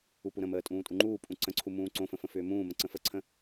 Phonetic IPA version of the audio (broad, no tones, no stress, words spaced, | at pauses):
upuɾə̃məː tʼũːtʼuŋ͡ǃuːpʼũ ǀə̃ǀʰu mũːǀõfə̃ fə̃fʏːmũːmə̃ ǀə̃fəǀʰə̃